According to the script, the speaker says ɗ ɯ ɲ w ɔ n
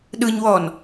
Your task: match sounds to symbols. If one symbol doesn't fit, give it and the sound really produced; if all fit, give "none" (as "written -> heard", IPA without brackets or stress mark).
none